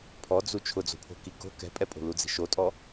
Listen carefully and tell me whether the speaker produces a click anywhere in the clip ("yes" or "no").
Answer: no